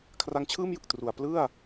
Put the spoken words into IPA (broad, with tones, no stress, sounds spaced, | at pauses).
kʰ r a˦˥ ŋ t͡ɕʰ ɯː˥˩ m j ɯ˨˩ k̚ t r u˨˩ a̯ p l ɯ˥˩ a̯